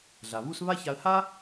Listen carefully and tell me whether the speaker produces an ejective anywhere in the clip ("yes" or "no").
no